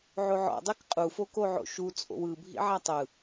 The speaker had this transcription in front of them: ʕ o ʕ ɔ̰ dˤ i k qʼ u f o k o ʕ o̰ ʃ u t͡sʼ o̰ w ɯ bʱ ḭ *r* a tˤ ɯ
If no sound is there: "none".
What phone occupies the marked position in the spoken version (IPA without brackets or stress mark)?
ʕ